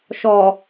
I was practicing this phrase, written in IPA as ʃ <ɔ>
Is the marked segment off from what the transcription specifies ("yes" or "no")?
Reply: no